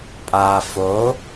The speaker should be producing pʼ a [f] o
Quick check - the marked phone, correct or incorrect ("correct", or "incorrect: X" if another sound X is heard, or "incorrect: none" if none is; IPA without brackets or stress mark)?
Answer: correct